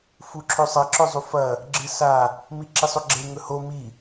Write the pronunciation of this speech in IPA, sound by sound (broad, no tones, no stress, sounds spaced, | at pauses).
f u ǁʰ ɵ sˤ ɐ ǁ ɵ zˤ u f ɐ | ɡ͡ǁ ɨ s a | m i ǁ i sˤ o ɡ͡ǁ e ŋ ɵ h o m i